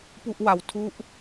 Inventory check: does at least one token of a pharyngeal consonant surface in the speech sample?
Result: no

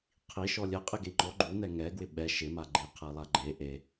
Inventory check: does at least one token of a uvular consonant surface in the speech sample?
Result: yes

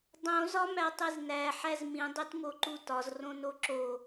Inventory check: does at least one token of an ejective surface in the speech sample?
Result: no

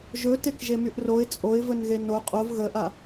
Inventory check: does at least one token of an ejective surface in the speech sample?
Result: yes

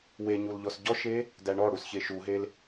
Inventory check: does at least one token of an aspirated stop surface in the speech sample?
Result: no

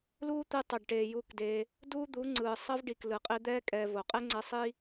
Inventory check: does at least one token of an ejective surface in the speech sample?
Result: yes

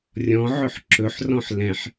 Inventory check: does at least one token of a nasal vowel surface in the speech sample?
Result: yes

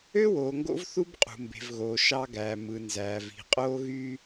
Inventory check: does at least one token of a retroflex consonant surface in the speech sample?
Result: no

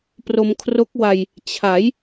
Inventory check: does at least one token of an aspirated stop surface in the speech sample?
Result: yes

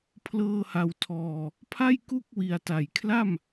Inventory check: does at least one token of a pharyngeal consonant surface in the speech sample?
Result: no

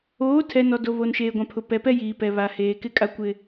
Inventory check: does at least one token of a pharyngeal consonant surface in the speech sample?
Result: no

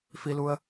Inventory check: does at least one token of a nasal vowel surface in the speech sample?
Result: no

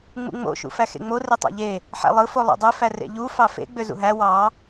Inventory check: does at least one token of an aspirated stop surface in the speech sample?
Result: no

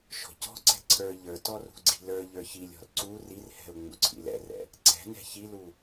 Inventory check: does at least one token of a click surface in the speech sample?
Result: yes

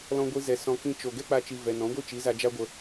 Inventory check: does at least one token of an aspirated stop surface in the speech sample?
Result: no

